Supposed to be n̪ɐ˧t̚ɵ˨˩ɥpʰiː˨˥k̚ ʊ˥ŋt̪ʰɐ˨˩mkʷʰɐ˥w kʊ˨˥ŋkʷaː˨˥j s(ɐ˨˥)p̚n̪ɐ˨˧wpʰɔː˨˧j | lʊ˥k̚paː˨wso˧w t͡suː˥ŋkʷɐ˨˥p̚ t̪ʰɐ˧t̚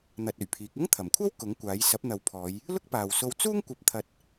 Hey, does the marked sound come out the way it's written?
yes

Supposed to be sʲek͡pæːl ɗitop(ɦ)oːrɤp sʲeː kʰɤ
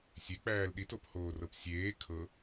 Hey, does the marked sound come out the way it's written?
no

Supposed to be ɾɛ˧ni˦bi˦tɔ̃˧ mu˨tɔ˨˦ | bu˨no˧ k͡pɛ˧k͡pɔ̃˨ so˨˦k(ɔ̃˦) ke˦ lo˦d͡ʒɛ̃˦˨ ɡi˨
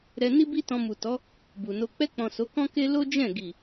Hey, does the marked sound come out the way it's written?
yes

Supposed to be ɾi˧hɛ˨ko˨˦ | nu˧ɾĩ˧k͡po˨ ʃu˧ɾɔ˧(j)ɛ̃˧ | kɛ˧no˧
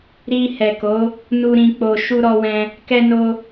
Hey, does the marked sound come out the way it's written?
no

